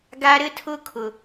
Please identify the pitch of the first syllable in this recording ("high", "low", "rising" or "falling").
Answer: high